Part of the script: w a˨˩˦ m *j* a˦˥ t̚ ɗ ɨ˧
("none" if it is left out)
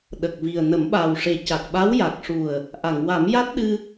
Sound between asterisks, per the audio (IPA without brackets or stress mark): j